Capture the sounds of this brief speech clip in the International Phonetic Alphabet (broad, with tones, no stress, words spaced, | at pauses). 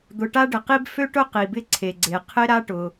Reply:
d̪ʊ˩ʈa˥ɖɪ˩qi˥b fø˥ʈʊ˥ qi˩bɪ˥ǀʰe˩ɡ͡ǀe˩ qʰɪ˥ ɾa˥ʈʊ˩